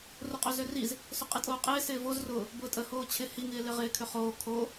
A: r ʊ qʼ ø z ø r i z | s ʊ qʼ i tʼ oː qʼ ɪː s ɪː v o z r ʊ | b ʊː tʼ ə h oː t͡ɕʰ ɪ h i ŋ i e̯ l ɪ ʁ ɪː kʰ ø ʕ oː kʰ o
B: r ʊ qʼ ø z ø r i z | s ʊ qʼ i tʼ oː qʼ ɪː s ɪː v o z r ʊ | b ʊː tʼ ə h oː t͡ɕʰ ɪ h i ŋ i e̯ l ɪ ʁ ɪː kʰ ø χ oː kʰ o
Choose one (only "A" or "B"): B